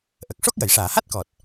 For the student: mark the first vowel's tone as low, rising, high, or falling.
low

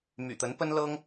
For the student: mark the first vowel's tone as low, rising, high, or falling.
low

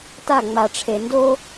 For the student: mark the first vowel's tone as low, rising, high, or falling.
falling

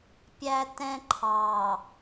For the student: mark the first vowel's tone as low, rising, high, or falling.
high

